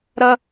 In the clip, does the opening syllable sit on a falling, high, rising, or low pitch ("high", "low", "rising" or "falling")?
high